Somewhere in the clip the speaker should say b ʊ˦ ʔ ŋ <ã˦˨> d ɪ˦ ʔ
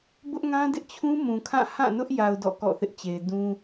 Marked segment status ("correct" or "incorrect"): incorrect